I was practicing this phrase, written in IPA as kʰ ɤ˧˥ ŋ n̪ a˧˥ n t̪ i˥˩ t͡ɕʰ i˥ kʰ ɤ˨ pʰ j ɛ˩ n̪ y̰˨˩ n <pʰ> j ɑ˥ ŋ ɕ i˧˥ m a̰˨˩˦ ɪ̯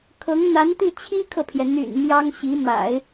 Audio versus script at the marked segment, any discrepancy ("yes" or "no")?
yes